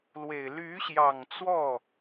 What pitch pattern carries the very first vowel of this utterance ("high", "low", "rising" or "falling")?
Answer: low